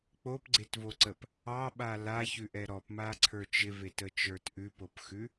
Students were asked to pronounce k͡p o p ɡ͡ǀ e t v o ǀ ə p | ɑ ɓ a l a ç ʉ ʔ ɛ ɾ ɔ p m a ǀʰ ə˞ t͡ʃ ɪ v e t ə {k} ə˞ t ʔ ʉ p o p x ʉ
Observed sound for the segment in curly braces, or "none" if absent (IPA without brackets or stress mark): t͡ʃ